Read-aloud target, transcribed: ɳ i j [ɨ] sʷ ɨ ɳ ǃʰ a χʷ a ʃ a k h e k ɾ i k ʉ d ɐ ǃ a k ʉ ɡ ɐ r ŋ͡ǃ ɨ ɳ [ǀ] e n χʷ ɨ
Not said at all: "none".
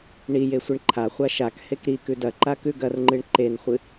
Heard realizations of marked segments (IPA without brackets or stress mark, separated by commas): e, ǃ